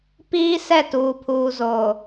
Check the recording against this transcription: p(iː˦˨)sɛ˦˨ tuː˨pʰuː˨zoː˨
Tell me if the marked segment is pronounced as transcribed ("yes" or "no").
no